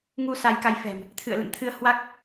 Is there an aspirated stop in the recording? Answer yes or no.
yes